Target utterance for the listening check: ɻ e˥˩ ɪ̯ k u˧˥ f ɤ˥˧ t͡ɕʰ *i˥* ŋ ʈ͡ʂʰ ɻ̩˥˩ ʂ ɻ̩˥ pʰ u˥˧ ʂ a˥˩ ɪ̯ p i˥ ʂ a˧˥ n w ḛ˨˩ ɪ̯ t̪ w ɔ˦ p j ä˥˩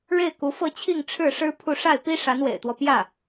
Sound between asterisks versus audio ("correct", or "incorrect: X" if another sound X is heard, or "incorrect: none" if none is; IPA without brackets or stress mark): incorrect: i˥˧